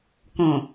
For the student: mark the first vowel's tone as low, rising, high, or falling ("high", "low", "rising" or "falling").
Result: low